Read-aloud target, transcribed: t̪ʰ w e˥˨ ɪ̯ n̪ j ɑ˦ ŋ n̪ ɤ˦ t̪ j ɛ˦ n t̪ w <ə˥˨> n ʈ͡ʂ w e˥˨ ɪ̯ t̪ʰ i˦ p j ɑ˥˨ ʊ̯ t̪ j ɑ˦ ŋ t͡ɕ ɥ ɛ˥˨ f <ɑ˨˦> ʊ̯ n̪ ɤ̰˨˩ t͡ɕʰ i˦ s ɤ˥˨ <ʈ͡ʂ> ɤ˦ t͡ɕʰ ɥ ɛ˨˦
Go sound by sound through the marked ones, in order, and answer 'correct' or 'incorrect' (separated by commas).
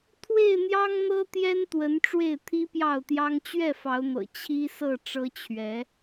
incorrect, correct, correct